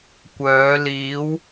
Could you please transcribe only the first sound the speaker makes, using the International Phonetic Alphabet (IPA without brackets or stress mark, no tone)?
kʷ